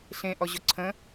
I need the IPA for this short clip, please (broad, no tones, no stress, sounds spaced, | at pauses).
ɬ ẽ ʔ ɔ ʑ ʊ ǀʰ ə̃